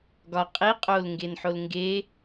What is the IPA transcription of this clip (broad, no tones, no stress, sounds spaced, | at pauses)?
ɡ ɒ qʼ i qʼ o l ŋ ɡ e n ħ o l ŋ ɡ e